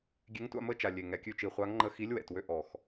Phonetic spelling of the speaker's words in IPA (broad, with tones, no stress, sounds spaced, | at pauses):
ɡʲ e˨˥ ŋ tʷ a̰˥˨ m ə˥˨ t͡ʃ a˨˩ lʲ e˨˩ ŋ ɛ˨˩ kʲ ʉ˥˨ t͡ʃ i˨˩ χʷ a˨˥ ŋ ŋ͡ǃ ə˧ x i˨˥ lʲ w ɛ̰˨˩ t w ø˧ ʔ ɔ˨˩ x